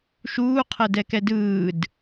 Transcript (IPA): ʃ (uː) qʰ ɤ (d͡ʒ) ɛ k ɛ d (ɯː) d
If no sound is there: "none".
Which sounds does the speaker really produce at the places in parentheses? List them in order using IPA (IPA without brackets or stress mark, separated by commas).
uː, d, ɯː